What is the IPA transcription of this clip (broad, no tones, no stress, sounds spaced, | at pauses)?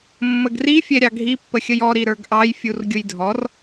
mː ə ɡ r i fʲ ɛ ɾʲ ɑ ɡʱ i pː ə xʲ ə j ɔ ɾ i ɾ ə˞ ɡ ʔ ɑ j fʲ u r ɡʲ ʊ j dʱ ɔ r